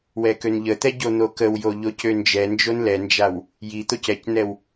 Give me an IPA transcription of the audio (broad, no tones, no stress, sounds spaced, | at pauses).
w ɛ k ø n ʎ ə t̪ ɛ ɟ o n̪ o k ə w j o ʎ o c ø n d͡ʒ ɛ n d͡ʒ o n l ɛ n d͡ʒ a w | j i t̪ o c ɛ c n ɛ w